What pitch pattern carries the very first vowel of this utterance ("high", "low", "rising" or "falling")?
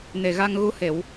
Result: low